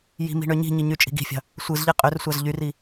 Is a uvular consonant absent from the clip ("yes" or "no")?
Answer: no